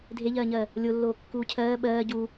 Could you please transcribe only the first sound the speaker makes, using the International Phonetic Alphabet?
dʱ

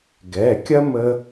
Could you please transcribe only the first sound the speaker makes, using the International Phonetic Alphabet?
ɡ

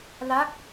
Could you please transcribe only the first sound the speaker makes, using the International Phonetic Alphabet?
l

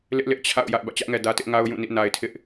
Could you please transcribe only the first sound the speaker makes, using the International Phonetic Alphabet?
l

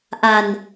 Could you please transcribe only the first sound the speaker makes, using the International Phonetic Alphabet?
ʔ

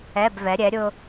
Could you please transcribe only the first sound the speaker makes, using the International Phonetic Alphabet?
ɛ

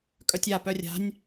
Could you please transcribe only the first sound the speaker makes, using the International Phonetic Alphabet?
kʼ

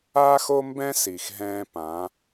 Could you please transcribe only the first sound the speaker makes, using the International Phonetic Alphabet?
aː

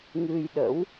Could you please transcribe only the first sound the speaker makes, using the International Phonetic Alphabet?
ŋ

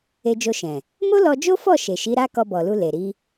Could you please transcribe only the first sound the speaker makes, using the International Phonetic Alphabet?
e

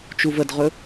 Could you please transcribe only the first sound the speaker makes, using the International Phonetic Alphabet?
t͡ʃ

